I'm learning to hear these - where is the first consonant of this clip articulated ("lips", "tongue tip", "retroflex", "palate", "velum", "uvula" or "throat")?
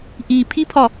throat